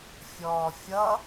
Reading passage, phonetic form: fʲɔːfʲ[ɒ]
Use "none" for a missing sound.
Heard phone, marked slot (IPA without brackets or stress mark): ʌ